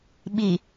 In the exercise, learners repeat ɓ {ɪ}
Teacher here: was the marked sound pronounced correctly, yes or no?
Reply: no